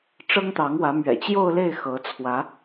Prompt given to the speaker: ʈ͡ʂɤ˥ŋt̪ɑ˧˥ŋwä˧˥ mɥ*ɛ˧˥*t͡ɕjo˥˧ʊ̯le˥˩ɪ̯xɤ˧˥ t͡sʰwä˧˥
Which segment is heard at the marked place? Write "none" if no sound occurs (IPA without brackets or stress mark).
ɛ̰˨˩